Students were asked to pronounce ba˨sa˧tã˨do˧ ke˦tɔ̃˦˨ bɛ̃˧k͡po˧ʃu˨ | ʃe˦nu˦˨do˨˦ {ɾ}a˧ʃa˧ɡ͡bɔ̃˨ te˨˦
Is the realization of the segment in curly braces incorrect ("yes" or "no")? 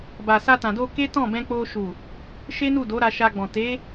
no